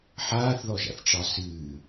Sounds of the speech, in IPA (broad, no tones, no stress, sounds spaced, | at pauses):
ħ aː θ ð ɔ ʒ a̰ θ ʈ͡ʂ ɑ s ɨː